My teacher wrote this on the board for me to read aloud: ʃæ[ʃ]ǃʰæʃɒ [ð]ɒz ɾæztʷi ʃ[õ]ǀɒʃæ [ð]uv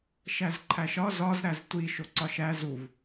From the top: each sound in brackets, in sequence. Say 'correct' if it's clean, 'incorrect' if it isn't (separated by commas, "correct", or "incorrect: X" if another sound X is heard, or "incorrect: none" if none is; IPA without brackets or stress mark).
incorrect: z, incorrect: z, incorrect: o, incorrect: z